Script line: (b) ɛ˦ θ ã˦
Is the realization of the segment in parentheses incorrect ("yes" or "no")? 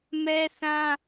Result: yes